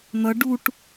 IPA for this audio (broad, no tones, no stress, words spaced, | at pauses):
n̪ʌ ɖuʈ